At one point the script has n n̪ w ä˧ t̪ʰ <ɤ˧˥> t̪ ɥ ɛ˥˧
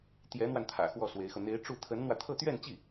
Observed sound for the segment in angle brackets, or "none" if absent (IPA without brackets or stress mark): ɤ˥˧